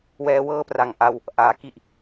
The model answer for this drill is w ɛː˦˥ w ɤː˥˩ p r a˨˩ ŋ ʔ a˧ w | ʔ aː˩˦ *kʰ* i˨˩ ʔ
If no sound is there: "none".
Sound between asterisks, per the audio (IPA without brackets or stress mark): k